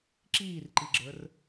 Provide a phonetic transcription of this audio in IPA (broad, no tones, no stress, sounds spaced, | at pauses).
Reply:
ǁ iː r ǃ i ɡ͡ǁ ə˞ r